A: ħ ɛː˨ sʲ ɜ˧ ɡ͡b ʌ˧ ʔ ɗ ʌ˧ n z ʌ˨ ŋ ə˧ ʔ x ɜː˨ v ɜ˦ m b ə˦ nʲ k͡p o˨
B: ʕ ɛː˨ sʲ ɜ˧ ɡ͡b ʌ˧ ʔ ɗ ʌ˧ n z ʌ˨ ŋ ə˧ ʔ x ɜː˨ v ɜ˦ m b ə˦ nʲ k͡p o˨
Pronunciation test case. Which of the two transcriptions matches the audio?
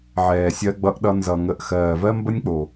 B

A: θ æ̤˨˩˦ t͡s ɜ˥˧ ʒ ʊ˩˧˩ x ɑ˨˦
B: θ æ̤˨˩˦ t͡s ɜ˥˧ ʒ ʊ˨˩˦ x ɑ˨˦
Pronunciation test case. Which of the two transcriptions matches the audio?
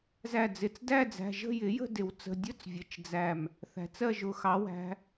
A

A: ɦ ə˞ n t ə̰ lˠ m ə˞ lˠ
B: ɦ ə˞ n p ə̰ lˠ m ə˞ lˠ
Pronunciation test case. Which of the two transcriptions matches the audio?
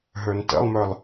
A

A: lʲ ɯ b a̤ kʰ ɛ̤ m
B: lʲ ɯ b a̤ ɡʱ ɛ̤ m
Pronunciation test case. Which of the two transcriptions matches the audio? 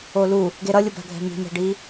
B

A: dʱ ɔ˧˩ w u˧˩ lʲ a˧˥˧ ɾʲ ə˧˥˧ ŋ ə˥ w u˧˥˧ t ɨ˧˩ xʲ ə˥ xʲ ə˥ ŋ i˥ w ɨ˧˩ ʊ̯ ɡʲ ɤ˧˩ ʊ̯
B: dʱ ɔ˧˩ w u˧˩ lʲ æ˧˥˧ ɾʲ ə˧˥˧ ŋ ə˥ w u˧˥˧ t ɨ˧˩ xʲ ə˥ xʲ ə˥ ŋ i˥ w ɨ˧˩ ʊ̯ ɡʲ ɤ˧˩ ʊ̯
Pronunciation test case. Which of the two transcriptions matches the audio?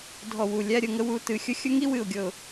B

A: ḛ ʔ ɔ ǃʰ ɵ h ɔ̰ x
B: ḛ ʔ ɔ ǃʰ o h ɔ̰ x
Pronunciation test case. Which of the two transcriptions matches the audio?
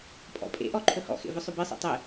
A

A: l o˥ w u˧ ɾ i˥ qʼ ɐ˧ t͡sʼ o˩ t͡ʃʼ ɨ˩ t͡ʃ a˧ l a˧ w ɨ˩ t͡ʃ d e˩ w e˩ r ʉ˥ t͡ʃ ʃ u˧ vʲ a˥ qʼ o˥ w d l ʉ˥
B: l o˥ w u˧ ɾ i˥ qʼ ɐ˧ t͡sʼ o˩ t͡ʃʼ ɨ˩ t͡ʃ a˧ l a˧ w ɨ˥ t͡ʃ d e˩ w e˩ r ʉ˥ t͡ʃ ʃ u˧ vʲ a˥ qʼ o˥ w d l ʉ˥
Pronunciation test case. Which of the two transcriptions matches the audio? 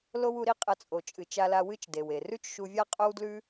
B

